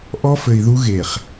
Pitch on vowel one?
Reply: high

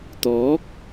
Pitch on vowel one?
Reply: rising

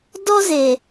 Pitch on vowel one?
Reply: high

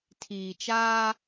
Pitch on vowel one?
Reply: low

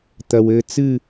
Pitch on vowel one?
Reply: low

